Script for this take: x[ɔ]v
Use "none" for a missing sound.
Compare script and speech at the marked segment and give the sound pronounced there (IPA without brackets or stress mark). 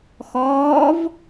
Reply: ɔː